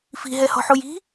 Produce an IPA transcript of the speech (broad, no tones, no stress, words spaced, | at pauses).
fi̤ɦɛhɔ̤ħuj i̤